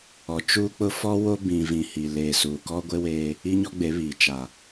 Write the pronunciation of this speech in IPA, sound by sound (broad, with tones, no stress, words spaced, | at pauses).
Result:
ɔ˨t͡ʃuː˦k͡pʊ˦ fɔ˦wo˦ bĩ˨vĩ˨ hi˨leː˨ suː˨kɔ˦ɡʷe˦weː˦ | i˦ɲɔ˦ɡ͡be˨˦βiː˨ t͡ʃa˨